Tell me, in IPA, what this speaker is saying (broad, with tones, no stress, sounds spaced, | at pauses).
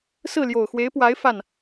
s ɹ̩˥˩ l j o˨˩ ʊ̯ x w e˧˥ ɪ̯ p w a˧˥ ɪ̯ f a˥˩ n